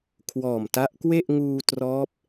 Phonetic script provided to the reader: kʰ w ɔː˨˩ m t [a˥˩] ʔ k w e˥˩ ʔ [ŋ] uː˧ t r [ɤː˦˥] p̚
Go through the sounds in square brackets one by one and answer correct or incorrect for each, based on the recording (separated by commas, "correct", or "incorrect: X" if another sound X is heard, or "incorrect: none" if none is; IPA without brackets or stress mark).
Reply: incorrect: a˦˥, correct, incorrect: ɔː˦˥